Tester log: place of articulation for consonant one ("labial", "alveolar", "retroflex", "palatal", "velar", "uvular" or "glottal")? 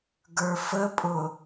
velar